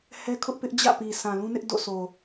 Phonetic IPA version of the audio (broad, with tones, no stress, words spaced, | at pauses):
hɛ˦ kʰʊ˦ʔ pɪ˦ʔd͡ʑä̰˦˨pi˨ sʰã˨lũ˦nɪ˦ʔ do̰˦˨ sʰo˨